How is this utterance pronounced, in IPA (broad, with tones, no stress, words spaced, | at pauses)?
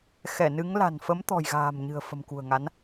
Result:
xɛ˧˩ nɨ˨˦ŋ la̤˨˩nfə˨˦mt̪ɔ̤˨˩jɣa̤ː˨˩m ɲɨ̤˨˩ə̯fə̤˨˩mkṳ˨˩ə̯ŋa˨˦n